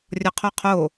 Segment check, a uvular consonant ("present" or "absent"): present